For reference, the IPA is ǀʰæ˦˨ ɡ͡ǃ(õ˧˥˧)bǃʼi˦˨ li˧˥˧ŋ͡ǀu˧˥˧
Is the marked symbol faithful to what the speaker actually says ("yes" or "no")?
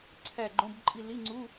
yes